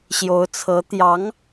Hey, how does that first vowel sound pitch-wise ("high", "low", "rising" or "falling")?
rising